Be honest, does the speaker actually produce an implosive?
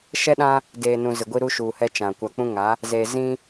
yes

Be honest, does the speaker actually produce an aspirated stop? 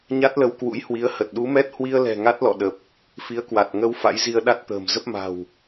no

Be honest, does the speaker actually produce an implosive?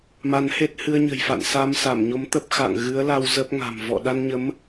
yes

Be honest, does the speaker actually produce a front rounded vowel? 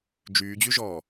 yes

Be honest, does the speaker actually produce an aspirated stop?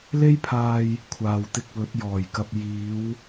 yes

